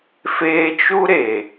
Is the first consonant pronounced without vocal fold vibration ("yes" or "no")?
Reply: yes